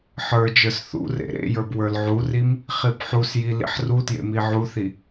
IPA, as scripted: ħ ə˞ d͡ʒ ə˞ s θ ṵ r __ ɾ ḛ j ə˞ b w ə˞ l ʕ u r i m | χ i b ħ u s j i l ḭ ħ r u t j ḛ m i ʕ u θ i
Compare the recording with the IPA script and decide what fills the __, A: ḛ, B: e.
A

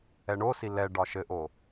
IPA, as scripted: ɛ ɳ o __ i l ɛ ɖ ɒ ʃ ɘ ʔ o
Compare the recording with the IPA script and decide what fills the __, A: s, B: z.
A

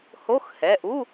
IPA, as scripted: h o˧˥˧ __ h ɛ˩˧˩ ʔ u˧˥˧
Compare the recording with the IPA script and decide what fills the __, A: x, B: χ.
A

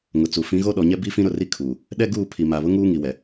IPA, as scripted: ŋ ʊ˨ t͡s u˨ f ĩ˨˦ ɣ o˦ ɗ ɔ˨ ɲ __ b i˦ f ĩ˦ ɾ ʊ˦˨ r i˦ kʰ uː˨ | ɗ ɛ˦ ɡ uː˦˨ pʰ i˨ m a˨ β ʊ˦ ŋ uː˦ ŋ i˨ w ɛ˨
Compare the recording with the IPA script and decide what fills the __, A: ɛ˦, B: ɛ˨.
A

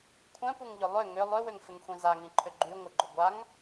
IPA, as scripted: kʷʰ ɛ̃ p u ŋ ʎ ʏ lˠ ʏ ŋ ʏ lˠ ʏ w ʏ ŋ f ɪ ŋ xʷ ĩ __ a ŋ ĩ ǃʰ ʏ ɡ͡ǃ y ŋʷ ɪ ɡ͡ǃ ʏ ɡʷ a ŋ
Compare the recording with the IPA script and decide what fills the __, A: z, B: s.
A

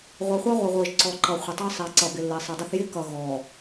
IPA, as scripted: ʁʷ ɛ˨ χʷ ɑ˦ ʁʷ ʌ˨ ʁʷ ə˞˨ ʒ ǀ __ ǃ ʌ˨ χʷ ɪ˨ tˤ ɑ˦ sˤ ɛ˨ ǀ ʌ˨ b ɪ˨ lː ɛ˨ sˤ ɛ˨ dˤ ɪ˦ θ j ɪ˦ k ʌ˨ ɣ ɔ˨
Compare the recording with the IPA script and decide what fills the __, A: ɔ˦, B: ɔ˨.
B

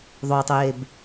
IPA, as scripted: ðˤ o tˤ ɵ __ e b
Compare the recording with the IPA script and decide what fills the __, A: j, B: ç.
A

